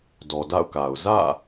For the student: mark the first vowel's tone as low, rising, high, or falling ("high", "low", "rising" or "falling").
low